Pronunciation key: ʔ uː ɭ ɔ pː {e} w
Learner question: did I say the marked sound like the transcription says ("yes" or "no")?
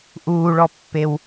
yes